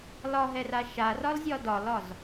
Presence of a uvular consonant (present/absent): absent